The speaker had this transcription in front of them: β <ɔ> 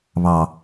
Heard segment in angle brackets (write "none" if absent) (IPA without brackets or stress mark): ɑ